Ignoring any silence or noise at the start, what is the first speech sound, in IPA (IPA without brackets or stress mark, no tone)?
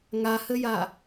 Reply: ŋ